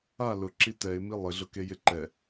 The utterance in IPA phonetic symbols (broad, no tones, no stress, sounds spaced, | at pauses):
a l ʊ ǁ i t ɛ ɪ̯ m i lˠ ɪ ɮ ʊ k e j ɪ ǃ ɛ